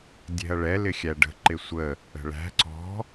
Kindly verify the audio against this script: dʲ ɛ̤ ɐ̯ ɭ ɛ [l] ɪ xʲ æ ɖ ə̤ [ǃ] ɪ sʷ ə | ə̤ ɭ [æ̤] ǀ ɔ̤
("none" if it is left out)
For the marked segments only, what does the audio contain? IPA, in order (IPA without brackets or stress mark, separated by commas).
l, ǃ, æ̤